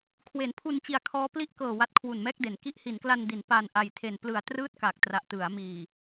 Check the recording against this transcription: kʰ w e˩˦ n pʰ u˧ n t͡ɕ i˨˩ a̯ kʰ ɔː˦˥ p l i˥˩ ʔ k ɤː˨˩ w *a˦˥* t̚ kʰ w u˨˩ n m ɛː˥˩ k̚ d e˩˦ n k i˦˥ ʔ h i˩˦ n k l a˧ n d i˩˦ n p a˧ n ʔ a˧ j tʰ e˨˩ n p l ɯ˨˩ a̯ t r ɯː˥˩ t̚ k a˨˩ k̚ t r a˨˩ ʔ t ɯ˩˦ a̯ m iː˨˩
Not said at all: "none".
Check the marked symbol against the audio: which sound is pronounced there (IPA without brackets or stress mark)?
a˦˥